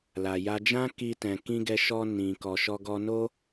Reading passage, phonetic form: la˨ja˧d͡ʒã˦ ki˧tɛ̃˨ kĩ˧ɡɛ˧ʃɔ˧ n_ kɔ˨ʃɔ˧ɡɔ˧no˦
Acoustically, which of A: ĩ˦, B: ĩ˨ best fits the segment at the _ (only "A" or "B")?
B